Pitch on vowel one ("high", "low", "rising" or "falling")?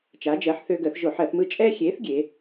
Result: rising